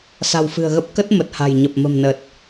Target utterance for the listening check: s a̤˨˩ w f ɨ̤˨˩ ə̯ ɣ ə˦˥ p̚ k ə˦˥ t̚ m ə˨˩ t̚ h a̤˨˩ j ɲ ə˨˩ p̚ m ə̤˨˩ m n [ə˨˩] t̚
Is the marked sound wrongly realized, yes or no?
no